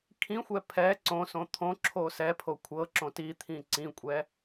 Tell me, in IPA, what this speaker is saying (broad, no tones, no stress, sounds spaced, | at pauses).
kʰ ĩ xʷ ɛ pʰ ɛ ǀ õ s õ t̪ʰ õ ǁʰ o s ɛ pʰ o kʷʰ ɤ ǁ õ t i t̪ʰ ĩ ǀ ĩ kʷʼ ɛ